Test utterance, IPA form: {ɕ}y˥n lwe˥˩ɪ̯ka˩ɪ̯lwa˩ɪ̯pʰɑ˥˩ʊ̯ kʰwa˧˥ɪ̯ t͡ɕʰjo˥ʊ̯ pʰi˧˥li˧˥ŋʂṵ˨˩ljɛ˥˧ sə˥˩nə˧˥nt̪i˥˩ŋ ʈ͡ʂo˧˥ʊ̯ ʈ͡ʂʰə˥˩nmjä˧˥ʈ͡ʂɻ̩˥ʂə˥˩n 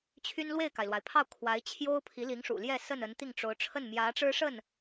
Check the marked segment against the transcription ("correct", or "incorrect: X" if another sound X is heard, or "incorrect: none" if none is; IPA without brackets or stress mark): incorrect: t͡ɕʰ